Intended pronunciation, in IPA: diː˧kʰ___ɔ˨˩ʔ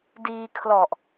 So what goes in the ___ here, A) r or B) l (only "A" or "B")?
B